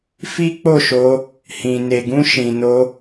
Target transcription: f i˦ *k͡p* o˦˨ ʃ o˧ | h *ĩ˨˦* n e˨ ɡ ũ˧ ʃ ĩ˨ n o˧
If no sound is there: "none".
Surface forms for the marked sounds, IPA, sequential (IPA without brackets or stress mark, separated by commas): k͡p, ĩ˨